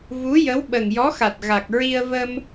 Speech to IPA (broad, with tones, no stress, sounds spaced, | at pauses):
v u˧˥ j ə˧˥ w ɓ ə˨˩ ŋ j ɔ˧˥ x a˨˩ t̚ ɣ a˨˩ k̚ ɹ i˧ ə̯ v ə˧ m